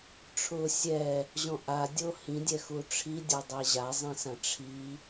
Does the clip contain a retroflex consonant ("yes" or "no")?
yes